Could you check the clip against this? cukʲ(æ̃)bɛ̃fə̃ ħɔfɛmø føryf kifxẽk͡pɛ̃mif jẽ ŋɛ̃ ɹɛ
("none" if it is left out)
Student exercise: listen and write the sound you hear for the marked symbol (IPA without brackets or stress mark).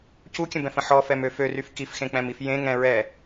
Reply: ə̃